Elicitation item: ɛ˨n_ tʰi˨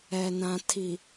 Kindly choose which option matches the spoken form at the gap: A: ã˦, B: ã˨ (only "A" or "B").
B